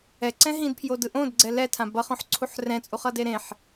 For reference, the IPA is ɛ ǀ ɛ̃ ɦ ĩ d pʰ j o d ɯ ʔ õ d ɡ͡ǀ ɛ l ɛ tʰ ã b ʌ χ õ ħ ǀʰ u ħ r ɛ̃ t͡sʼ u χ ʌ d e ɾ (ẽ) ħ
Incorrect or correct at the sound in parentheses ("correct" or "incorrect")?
correct